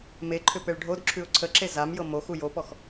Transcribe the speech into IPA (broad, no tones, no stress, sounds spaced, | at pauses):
m e ǃʰ ʏ p e ɭ ɖʱ o d ǁʰ ʉ ʊ̯ ǀʰ ə ǁ e z a m j ɤ m o x u j o p ɔ x